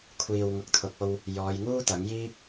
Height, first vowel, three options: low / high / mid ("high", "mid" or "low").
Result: high